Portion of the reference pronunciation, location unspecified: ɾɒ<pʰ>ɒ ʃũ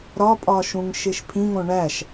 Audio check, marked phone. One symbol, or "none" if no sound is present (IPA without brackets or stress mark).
pʼ